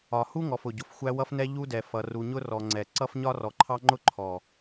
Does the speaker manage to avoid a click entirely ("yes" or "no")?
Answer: no